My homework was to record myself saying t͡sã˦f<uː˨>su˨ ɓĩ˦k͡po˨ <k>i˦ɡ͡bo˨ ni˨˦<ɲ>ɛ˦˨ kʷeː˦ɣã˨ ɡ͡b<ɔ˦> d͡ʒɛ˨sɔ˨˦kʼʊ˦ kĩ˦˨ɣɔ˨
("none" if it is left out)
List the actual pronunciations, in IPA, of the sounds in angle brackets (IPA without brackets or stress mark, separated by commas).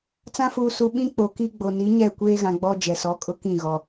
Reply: uː˨, k, ɲ, ɔ˦